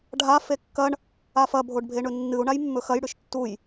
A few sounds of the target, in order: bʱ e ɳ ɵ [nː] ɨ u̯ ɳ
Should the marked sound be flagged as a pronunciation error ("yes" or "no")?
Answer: no